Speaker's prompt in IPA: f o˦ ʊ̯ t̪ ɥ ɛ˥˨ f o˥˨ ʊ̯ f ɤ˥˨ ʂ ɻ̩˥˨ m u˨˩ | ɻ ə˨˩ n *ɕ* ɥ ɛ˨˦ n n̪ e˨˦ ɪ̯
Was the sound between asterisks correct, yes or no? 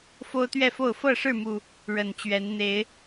no